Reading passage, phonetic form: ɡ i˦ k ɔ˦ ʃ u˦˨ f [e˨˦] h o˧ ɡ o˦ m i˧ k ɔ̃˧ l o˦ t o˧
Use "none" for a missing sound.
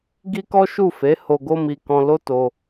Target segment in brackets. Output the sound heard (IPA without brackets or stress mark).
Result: e˨˦